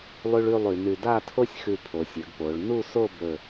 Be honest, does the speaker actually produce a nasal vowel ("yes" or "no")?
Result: no